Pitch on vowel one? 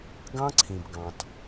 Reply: high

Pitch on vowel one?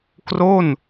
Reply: falling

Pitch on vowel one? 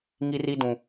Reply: high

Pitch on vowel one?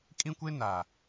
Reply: high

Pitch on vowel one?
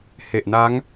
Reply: low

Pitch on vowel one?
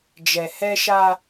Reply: low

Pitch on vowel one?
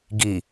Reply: low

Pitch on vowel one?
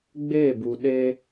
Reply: falling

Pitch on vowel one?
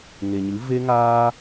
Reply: low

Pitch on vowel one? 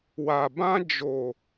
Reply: low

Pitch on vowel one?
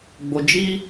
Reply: low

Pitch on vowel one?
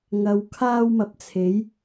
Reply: low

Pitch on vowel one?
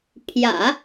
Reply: low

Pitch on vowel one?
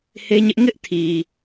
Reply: high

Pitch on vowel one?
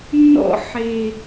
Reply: high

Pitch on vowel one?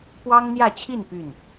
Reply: high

